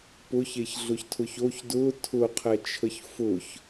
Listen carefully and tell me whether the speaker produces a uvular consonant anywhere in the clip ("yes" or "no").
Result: yes